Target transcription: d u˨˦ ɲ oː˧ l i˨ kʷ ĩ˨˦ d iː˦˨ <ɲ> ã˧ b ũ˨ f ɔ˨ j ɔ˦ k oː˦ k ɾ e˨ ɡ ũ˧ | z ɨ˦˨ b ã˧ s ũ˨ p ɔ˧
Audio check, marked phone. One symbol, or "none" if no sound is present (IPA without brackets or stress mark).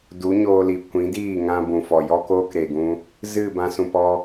ŋ